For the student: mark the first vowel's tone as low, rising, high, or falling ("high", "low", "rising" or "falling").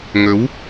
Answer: rising